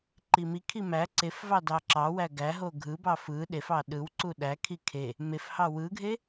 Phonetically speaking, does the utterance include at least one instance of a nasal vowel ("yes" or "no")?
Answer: no